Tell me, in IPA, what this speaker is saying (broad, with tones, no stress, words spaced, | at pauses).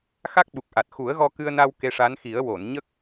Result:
xa˦˥k̚ɓu˨˩k̚ʔa˨˩t̚ xu˨˩˦ə̯ ɣɔ˧kɨ˧ə̯na˧w ke˧ʂa˧˥nxi˨˩˦ə̯ wo˨˩˨nɲə˦˥k̚